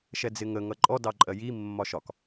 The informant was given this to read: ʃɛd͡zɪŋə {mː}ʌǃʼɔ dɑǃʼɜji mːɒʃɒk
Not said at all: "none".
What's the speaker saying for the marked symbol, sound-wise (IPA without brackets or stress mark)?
ŋ